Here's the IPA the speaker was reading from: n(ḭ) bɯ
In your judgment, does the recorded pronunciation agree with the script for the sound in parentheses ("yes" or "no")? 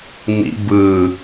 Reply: yes